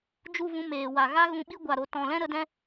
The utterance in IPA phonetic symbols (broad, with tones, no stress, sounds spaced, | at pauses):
d͡ʒ u˦˨ v ũ˧ m eː˨ w a˨ ɣ a˦ ɣ ũ˧ ɓ i˦ ɡʷ a˨ ɾ o˨ t ɔ̃˨ l ɛ̃˦ ɾ ə˧ d ɛ̃˦